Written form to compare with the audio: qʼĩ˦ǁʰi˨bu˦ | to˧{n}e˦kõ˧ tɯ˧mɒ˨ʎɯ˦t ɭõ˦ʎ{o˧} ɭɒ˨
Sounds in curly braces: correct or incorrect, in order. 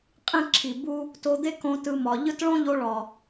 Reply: incorrect, correct

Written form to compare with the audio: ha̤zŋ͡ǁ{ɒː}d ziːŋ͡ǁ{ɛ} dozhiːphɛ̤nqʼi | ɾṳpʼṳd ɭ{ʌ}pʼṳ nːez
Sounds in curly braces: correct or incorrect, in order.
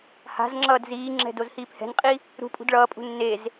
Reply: incorrect, incorrect, incorrect

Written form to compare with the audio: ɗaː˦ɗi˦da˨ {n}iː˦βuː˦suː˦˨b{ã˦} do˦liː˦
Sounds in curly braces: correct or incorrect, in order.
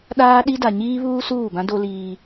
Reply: incorrect, correct

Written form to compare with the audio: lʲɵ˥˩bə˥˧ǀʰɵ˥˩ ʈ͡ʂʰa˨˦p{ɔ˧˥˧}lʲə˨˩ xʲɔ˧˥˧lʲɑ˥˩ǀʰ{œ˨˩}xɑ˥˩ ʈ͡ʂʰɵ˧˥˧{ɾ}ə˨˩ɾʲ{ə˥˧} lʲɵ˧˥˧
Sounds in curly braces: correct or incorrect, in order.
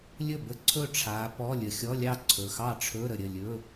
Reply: correct, incorrect, correct, incorrect

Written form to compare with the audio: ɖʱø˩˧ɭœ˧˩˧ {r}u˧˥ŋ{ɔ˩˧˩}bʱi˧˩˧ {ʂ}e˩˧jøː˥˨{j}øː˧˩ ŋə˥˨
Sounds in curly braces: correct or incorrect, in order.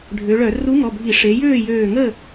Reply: correct, correct, correct, correct

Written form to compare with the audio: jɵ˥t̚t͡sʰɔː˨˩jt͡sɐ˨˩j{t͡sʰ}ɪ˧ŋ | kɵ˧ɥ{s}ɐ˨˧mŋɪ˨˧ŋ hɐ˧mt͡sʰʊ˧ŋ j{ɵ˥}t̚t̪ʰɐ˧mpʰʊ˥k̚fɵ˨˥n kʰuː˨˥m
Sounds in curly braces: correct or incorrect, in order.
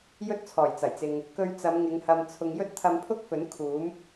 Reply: incorrect, incorrect, correct

